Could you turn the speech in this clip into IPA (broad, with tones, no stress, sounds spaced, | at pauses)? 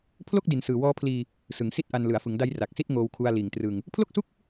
pʰ l o˥˩ k̚ d i˨˩ n s ɯː˨˩ w ɔː˦˥ pʰ l iː˧ | s ɯ˩˦ ŋ s i˥˩ t̚ ʔ a˧ n l ɯ˩˦ a̯ f ɯ˩˦ ŋ d a˦˥ j r a˨˩ k̚ s i˥˩ t̚ ŋ oː˧ w kʰ u˧ a̯ l iː˨˩ ŋ t r ɯ˧ ŋ | pʰ l o˥˩ k̚ s u˥˩ k̚